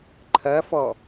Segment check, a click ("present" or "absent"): present